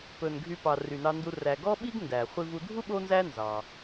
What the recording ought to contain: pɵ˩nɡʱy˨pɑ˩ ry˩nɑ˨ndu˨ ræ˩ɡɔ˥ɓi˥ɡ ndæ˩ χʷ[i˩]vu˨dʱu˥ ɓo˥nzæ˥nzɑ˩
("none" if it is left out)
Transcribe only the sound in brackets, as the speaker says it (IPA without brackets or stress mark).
i˨